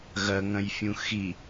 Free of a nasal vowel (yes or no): no